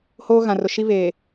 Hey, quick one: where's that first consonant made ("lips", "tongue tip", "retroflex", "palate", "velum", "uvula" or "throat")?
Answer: throat